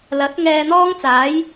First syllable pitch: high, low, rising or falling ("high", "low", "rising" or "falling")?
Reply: rising